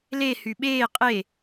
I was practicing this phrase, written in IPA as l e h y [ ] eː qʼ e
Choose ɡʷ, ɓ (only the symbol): ɓ